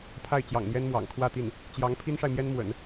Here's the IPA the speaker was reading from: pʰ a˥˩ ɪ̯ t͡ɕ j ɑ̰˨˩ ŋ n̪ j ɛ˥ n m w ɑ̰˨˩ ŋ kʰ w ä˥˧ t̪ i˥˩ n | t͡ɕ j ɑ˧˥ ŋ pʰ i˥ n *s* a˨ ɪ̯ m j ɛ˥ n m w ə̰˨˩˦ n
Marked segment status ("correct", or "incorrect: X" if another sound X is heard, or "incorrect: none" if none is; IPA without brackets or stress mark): incorrect: ʂ